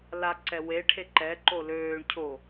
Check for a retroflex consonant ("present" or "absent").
present